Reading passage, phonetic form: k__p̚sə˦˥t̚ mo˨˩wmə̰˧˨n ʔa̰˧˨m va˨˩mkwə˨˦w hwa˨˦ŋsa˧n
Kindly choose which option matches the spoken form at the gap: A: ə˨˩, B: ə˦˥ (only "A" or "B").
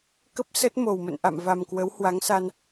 B